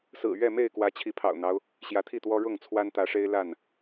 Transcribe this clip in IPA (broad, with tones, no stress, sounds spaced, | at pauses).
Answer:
s ɹ̩˨˩ ɥ ɛ˥˨ m e˥˨ ɪ̯ k w ä˨˦ t͡ɕʰ i˨˦ pʰ ɑ̰˨˩ ʊ̯ n̪ ɑ˦ ʊ̯ | ɕ j ä˨˦ t̪ʰ i˥˨ t̪ w ɔ˦ ɻ ʊ˥˨ ŋ t͡sʰ w a˦ n t̪ ä˨˦ ʂ e˦ ɪ̯ l a˥˨ n